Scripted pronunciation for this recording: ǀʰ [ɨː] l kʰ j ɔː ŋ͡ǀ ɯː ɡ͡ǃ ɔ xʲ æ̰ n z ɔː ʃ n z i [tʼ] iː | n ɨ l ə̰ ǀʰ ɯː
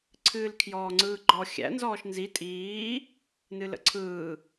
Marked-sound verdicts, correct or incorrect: correct, correct

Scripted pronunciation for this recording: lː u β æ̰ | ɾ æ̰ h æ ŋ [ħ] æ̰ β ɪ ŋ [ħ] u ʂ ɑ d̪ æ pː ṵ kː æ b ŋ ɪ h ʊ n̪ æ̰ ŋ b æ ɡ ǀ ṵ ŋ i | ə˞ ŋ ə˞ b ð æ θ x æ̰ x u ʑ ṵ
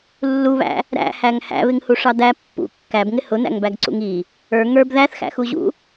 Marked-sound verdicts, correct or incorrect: incorrect, incorrect

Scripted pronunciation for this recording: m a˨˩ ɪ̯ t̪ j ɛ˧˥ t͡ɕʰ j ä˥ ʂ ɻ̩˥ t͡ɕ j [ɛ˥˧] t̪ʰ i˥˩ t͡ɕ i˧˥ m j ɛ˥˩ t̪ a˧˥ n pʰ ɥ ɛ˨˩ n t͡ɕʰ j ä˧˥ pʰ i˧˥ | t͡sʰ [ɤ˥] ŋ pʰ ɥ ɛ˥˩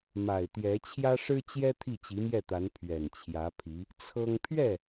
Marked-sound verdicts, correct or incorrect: incorrect, correct

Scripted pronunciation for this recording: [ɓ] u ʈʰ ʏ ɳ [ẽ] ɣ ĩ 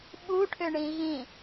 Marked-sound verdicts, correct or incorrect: correct, incorrect

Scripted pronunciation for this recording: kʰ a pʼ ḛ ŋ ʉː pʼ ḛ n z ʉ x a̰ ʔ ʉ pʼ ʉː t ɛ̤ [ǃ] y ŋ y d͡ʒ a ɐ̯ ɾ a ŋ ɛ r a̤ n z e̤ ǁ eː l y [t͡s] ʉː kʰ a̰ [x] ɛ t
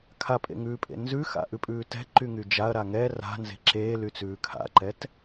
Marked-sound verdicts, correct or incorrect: correct, correct, incorrect

